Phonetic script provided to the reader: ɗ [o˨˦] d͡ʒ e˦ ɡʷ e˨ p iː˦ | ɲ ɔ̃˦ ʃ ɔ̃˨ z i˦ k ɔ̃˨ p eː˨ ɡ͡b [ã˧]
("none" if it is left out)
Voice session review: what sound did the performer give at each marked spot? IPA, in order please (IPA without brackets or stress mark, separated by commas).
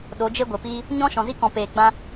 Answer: o˨˦, ã˧